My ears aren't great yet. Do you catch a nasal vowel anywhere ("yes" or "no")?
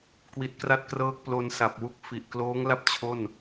no